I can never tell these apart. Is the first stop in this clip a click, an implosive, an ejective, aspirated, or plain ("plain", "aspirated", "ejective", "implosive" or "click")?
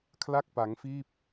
aspirated